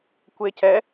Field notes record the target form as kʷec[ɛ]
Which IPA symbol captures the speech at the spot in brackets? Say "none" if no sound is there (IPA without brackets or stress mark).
ɛ